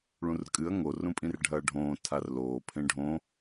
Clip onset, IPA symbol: ɭ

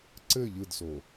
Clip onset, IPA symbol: ǀ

